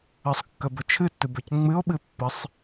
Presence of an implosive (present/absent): present